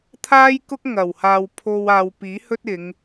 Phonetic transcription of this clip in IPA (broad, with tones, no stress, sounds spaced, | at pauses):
t̪ʰ aː˥ j k ʊ˥ k̚ ŋ ɐ˨˩ w h aː˨ w pʰ o˧ w aː˨ w p iː˨˥ h ɵ˥ t̚ ɪ˨˧ ŋ